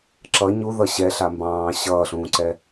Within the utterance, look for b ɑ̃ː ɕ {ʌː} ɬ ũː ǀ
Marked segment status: correct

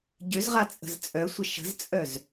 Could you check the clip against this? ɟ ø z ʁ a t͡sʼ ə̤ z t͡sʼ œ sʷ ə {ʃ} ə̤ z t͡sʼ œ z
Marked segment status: correct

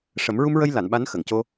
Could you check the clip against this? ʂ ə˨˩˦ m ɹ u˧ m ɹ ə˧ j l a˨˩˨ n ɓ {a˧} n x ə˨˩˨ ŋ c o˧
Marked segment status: incorrect: a˧˥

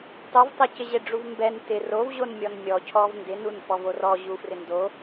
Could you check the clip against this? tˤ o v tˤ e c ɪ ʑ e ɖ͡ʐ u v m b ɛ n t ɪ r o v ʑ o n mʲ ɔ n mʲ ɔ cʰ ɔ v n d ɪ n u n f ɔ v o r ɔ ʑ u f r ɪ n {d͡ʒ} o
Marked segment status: incorrect: d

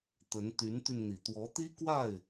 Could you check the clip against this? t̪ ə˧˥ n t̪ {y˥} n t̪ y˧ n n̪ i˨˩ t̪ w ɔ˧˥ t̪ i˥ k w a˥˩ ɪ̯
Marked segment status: incorrect: y˧˥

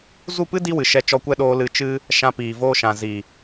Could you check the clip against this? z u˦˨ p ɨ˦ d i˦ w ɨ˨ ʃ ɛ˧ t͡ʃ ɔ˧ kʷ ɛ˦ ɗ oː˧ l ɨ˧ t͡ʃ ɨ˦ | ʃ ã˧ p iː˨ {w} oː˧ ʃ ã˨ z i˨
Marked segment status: incorrect: v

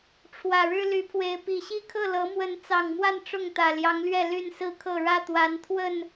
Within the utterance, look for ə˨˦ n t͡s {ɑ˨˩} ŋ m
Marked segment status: correct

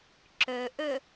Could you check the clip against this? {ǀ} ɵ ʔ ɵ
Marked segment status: incorrect: ǁ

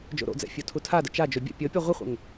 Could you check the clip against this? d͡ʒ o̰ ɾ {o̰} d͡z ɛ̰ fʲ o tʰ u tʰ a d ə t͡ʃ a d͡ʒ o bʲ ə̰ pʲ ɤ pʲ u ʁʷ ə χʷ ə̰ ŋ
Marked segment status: correct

